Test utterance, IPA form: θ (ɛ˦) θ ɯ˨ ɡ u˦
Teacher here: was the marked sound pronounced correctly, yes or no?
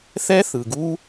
yes